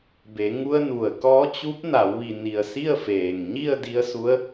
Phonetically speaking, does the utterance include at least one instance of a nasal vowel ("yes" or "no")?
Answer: no